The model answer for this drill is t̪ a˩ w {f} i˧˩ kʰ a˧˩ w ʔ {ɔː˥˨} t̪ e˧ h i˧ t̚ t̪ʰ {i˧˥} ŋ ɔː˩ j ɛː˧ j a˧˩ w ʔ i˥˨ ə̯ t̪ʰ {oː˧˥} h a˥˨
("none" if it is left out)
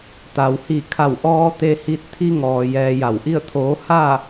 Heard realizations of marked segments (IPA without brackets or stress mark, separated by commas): h, ɔː˧, i˧, oː˧˥